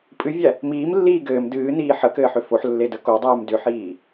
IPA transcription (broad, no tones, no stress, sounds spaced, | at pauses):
pʼ ɨ vʲ æ | m iː m lː iː ɡ ɘː m d ɨː n iː ħ ə k ɘː ħ ʏ f o ħ lː e d ə k o dˤ ɨː m d ʏ ħ iː